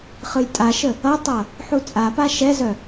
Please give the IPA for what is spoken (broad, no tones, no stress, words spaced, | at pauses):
χɯjtʼaʃə | ʌtˤʌ | ħut͡sʼapa ʃɛzœ